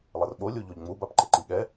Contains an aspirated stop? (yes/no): no